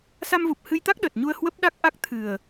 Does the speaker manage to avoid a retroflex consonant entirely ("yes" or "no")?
yes